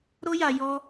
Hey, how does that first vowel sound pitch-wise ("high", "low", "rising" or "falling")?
high